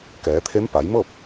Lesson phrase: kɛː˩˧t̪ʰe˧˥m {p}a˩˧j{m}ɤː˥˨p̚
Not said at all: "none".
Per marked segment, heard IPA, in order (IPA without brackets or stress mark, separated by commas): p, m